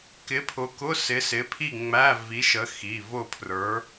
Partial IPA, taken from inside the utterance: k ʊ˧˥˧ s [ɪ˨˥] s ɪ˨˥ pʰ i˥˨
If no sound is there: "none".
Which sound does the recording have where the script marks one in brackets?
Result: ɪ˨˥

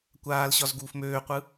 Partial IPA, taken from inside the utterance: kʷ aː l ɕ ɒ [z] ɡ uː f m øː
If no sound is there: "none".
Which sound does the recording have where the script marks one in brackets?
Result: z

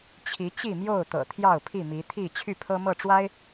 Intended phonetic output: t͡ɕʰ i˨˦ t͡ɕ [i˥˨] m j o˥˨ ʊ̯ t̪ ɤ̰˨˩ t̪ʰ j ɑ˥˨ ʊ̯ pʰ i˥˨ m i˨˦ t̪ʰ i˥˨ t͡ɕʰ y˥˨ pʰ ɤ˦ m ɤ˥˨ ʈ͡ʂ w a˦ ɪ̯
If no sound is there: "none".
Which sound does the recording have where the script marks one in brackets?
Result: i˥˨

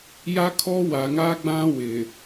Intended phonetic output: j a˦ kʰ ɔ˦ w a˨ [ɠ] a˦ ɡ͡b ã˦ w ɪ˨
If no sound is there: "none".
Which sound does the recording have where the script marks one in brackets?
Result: ŋ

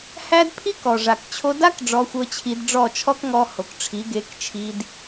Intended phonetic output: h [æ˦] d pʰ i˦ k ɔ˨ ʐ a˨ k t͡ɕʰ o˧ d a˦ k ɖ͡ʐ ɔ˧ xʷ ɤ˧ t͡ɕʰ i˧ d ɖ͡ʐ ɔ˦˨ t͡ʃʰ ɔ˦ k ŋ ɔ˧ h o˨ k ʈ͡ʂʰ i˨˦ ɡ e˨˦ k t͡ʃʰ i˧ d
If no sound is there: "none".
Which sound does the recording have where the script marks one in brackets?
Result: æ˦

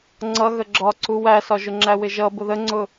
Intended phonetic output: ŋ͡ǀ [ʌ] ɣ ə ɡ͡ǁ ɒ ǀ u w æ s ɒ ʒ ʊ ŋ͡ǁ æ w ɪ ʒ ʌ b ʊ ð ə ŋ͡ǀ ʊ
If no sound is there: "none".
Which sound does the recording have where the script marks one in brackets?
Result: ʌ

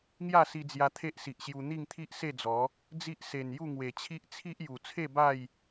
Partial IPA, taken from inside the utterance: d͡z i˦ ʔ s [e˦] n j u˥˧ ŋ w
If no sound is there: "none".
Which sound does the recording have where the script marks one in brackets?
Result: e˨˩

